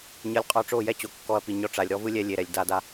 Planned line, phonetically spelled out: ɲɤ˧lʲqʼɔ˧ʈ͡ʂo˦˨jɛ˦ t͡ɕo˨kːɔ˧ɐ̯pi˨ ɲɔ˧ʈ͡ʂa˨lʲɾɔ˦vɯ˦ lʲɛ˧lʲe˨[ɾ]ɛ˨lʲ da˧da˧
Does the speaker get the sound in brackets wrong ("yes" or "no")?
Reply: no